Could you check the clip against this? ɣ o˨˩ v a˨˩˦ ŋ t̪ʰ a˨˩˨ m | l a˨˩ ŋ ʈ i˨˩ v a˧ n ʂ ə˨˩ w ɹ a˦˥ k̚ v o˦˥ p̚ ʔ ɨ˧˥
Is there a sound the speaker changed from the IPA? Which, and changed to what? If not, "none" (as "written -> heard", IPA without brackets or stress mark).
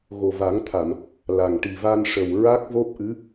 none